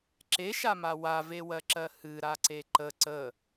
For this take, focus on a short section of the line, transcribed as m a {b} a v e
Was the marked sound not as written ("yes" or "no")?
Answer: yes